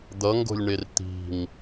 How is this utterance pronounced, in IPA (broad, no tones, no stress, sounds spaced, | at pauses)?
d̪ ʌ ŋ ɡ o̤ lʲ ɳ e r t̪ i̤ ŋ